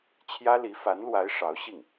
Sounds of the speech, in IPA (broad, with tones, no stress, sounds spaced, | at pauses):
t͡ɕʰ j ä˥ l i˧˥ f a˧˥ n l w a˧˥ ɪ̯ ʂ ɑ˧˥ ʊ̯ ɕ i˥˩ ŋ